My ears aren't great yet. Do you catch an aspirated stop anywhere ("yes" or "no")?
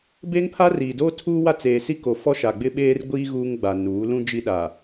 yes